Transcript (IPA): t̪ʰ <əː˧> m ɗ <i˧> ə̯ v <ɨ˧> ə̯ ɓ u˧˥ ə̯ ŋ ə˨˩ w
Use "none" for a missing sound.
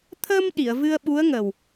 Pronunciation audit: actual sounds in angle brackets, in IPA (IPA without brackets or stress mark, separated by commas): ə˧, i˨˩˨, ɨ˧